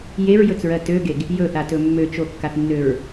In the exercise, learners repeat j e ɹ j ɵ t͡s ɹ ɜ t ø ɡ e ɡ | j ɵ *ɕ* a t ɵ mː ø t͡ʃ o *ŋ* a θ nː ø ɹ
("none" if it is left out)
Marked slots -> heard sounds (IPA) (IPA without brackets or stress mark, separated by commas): θ, kː